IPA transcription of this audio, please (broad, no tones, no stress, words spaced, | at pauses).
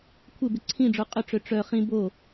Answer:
kʷʰɪbɪ ǀʰĩɖ͡ʐo qʼʏʈ͡ʂø ʈ͡ʂœ χĩ bo